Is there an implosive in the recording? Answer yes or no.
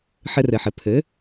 no